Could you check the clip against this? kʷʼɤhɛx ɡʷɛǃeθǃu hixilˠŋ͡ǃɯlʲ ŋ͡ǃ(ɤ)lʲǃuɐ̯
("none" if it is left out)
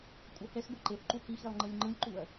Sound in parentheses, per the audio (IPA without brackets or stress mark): ɯ